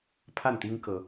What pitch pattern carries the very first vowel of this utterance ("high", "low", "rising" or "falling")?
falling